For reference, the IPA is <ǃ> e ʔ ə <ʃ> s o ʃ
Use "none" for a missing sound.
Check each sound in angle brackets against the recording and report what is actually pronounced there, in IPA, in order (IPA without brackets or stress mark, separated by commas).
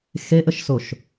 x, ʃ